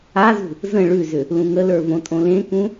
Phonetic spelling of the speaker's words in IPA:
azṳ | zə̃ ɭʉzʏ | lũŋələ˞ võtʼõlẽkũ

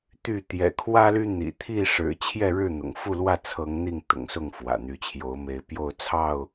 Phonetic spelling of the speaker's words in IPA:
t̪y˥˨ t̪jɛ̰˨˩ kʰwä˦ly˦n̪ḭ˨˩ t̪ʰi˥˨ʂɻ̩˨˩t͡ɕʰjɛ˥˨ ɻɻ̩˥˨ n̪ʊ̰˨˩ŋ fu˥˨lwä˥˨ t͡sʰɤ˨˦ŋn̪i˥˨ŋ t̪ʊ̰˨˩ŋsʊ˥˨ŋ fwä̰˨˩n̪y˨˦t͡ɕʰjo˨˦ʊ̯me˨˦ɪ̯ pjo˥˨ʊ̯t͡sʰɑ˥˨ʊ̯

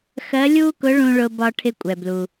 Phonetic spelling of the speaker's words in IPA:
xɜ˧˥lʲu˥kʊ˧˥ɭũ˧ ɭʊ˧bɒ˧ ʈʰɪ˧kʷʼɛ˩blu˩

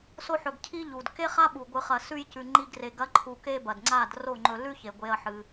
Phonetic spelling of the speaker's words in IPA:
so˦ħɵ˧ɡcʰi˦ʎu˨d ke˦χa˦ɓu˨ ɡʷɨ˧χɐ˧ sʉ˧jcʉ˨ ŋ͡ǃi˧ɡre˨ ɡɐ˨˦ǃʰu˨ke˧ bɐ˨dŋ͡ǀa˦˨d ro˦˨ŋ͡ǃɵ˧ lʉ˦çe˨ɡʷe˧ɐ̯ ħɨ˧

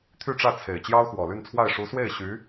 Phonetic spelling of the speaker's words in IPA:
t̪ʰy˥˧ʈ͡ʂä˥˩t͡sʰe˨˩ɪ̯ t͡ɕjɑ˥ʊ̯xwɔ˨˩ly˥˧nt͡sʰwa˥˩ɪ̯ ʂu˧˥swe˥˩ɪ̯ ɕy˧˥

